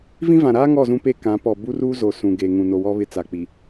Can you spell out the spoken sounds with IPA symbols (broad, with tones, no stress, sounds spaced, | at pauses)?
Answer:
v ĩ˦ v ã˨ ɾ aː˦ ŋ ɔ˦˨ z ũ˦ p e˦ k ã˨˦ p ɔ˨ b u˦ r uː˦ z o˨ s ũ˨ ɡ e˨ ŋ ũ˨ n o˨ w ɔ˦ β ɪ˦ t͡s a˨ k͡p i˨